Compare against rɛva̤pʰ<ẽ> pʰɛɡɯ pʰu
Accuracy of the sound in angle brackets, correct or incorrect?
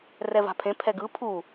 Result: correct